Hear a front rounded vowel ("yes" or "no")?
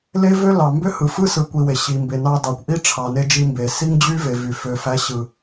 yes